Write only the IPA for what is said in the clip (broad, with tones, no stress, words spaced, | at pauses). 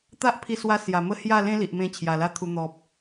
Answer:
t̪a˦ʔpʰi˧swa˧ sja˨˩mə˦ hja˥˧lẽ˦li˨ʔmẽ˧ t͡ɕʰja˨˩la˦t̪ʰu˧ n̪ɔ˨p̚